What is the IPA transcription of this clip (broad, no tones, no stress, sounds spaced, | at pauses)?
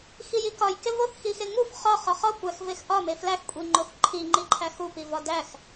x i j i k ɒ j k e v o θ x i x e ŋ u f χ ɒ χ ɒ χ ɒ kʷ æ x v e x ʔ ɒ m e f l æ x kʷʼ i ŋ͡ǃ o θ ǃʰ i ŋ͡ǃ i ǃʰ æ x u p i v ɒ d æ x